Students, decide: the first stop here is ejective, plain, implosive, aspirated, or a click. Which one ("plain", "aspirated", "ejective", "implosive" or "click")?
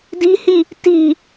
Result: plain